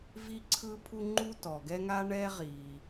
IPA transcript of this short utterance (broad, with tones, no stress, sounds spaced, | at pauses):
v i˥ ǀʰ ɯ˥ pʰ u˥ ŋ͡ǃ u˥ t ɔ˩ ɡ ɛ˥ ŋ a˥ ɳ ɛ˥ ʁ i˩